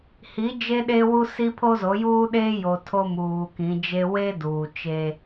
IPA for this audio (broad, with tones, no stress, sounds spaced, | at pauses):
h i˨˦ d͡ʒ e˦ ɗ eː˦ w u˦ s i˦ pʰ o˦ z o˨˦ j uː˦ ɗ eː˦ j o˨ tʰ o˦ m uː˨ k ĩ˨˦ d͡ʒ e˦ w e˦ d uː˨ t͡ʃ e˦